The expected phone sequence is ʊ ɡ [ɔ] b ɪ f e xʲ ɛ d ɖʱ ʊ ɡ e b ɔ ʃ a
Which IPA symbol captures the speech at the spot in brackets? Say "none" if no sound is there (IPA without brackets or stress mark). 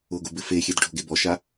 ʊ